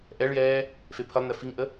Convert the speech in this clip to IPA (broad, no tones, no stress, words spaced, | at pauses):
ʔɛɭjɛː | fepʰəlˠnɛ fiŋʔə